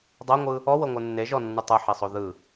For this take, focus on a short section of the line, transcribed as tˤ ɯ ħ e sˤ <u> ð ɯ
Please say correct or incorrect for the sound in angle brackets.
incorrect